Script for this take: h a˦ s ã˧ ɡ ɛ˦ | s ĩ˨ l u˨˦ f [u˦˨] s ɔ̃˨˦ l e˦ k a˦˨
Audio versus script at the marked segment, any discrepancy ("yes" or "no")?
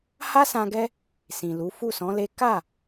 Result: no